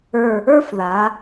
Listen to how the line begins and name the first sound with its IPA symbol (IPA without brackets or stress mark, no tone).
ə˞